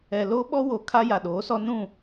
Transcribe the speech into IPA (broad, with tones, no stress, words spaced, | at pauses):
ɛ˨loː˦ɓɔ˦ wo˨ kʰa˦ja˨ɗoː˨˦sɔ˦ nũ˦˨